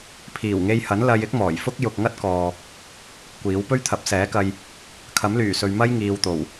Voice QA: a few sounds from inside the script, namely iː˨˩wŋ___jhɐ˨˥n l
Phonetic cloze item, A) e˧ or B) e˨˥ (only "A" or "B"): A